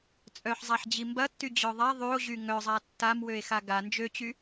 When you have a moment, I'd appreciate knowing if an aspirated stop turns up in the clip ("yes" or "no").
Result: no